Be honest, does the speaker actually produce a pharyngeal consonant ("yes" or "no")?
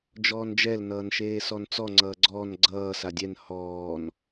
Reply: no